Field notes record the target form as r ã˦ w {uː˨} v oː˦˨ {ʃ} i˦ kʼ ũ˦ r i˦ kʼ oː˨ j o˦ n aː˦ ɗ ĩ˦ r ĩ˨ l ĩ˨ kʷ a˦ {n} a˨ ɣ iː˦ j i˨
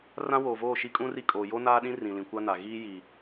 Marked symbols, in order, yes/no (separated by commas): no, yes, yes